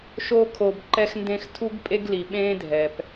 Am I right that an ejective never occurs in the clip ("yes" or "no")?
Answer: no